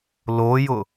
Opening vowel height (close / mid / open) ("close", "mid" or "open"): mid